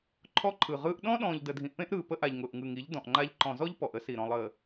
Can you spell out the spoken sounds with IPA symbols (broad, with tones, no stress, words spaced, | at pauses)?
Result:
ǃʰɔ˦ǃʰɯ˨ʁɯː˦ʔ ɗɔ̃˦ɗɔ̃ː˨ʎ də˨dʱĩ˨ʔpẽ˦ʔɾɯː˨ pə˦ʔa˨ʎ ŋʊː˨ʔŋɯ˨ŋi˨˦ʎ dɔ̃˨ʔŋ͡ǃa˦ʎ ǃɔ̃˨zɔ˦ʎ pɔ˨ʔə˦si˨ ɾɔ̃˨lˠəː˨